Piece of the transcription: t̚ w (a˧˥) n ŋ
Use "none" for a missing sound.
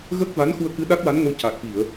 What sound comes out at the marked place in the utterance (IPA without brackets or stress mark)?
a˧˥